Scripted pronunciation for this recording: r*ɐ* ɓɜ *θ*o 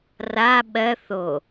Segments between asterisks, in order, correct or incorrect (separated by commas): incorrect, correct